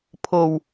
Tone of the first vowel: low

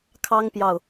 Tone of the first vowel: high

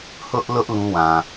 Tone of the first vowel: high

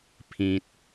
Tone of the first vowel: low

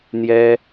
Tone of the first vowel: high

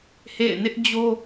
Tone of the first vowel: falling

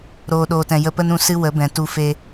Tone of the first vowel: low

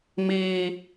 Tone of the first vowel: high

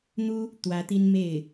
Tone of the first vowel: high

